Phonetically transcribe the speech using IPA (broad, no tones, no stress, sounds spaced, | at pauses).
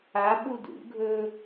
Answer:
a ɓ u d ṵ ɡʱ ɵ